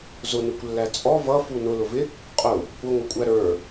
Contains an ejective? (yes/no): yes